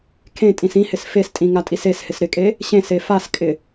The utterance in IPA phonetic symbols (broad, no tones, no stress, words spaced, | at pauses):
kʰẽtʼĩs ĩhɪs festʼĩ ŋatʼiseshɪs ɾɪkʼe | ɕẽse faskʼɪ